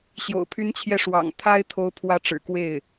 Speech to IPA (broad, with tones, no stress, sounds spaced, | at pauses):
ɕ j o̰˨˩ ʊ̯ pʰ y˥ n t͡ɕʰ j ɛ˥˩ ʂ w ɑ̰˨˩ ŋ t̪ʰ a˥ ɪ̯ t̪ʰ o˧˥ ʊ̯ pʰ w ä˧˥ ʈ͡ʂ ɻ̩˨˩ k w e˥˩ ɪ̯